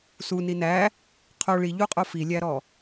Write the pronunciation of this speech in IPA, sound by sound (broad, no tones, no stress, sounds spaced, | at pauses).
s u n i n æ | qʰ o ɭ i ʎ u qʼ o f i lʲ æ ɾ ɔ